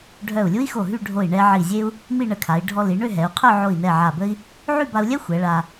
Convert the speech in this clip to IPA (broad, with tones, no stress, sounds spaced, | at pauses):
ɖʱ œ˧˩ u̯ lʲ u˥ i̯ x o˧˩ ɦ y˥˧ ɖʱ o˧˩ i̯ ɳ ɛ˧ ʕ i˧˩ zʲ e˥ u̯ | m i˥˧ ɳ ə˧ kʰ a˩˧ i̯ ɖʱ ɔ˧ l i˩˧ ɳ ø˥˧ ɦ ɛ˩˧ u̯ qʰ œ˥˧ ʕ o˧˩ i̯ n ɛ˧˩ ʕ a˧˩ b ə˥ i̯ | ʕ y˥˧ b a˧ u̯ lʲ ɛ˥ xʷ ɛ˩˧ ɭ a˧